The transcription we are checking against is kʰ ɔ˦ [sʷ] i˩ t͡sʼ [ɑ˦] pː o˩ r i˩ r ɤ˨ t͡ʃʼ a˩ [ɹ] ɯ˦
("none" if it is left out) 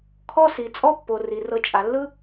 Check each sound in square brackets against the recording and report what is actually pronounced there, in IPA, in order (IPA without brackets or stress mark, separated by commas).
s, ɔ˦, lː